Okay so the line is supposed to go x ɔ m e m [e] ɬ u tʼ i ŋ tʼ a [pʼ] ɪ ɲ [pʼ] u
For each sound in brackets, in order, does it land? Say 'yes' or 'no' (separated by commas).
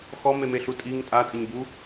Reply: yes, no, no